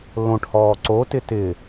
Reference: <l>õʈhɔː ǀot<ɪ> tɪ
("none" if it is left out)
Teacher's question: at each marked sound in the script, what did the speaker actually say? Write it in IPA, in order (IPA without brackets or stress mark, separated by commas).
l, ɪ